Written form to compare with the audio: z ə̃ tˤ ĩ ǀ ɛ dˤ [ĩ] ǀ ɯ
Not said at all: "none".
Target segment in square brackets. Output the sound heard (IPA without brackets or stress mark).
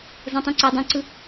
ĩ